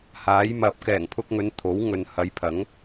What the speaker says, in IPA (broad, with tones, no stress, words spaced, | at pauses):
haː˨˥jmɐ˨˥p̚ kɛː˨˩ŋpʰʊ˧k̚ŋɵ˨˧n t̪ʰo˨˥w ŋɵ˨n hɐ˨˧jpʰɐ˨˥ŋ